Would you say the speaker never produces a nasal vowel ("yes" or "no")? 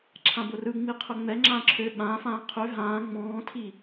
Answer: no